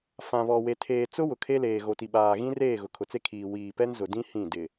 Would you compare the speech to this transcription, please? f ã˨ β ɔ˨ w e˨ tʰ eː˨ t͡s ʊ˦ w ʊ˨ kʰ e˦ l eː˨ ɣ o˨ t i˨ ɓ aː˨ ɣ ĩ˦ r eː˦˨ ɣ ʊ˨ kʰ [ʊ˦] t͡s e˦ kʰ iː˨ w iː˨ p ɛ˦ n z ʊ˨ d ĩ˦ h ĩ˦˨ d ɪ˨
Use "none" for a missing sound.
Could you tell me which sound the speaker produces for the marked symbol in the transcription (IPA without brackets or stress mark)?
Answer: ʊ˨